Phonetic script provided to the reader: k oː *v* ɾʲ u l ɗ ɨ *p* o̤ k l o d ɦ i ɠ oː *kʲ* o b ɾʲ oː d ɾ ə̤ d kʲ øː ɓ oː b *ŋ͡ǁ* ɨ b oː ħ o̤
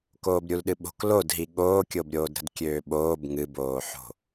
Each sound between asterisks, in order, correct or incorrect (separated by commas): incorrect, incorrect, correct, incorrect